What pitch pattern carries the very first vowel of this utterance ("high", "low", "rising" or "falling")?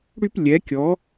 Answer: high